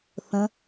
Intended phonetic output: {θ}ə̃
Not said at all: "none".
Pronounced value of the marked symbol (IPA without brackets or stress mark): θ